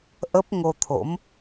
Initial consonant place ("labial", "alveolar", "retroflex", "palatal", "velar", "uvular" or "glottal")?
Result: glottal